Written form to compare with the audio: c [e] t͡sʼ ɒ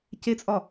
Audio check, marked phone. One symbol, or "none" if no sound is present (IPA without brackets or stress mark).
e